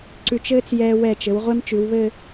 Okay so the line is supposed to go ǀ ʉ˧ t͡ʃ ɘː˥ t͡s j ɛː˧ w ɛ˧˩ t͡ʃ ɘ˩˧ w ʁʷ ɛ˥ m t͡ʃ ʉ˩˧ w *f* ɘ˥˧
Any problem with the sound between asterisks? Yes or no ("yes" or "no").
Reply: yes